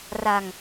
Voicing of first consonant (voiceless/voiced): voiced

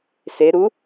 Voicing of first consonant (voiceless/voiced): voiceless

